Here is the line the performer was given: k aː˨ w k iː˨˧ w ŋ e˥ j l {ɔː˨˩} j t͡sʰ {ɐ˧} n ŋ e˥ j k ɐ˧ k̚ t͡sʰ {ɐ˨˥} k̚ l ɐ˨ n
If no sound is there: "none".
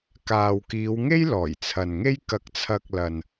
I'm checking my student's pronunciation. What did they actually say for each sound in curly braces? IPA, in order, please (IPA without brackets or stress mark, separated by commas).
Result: ɔː˨˩, ɐ˨, ɐ˧